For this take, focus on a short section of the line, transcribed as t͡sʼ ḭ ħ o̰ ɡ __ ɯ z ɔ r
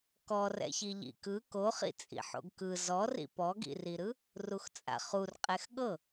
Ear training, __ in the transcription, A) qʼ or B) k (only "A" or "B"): B